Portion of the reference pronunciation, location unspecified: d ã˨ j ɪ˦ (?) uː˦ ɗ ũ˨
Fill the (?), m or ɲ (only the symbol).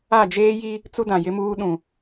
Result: m